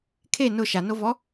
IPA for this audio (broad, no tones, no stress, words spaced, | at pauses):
kʰe nʊ ʃanovɔ